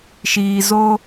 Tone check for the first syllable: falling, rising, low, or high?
low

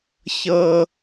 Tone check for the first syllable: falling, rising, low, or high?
high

